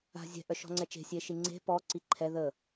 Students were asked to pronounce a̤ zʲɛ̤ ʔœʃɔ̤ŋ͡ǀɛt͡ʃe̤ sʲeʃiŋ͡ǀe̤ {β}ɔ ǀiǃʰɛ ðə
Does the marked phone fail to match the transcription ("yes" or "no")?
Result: yes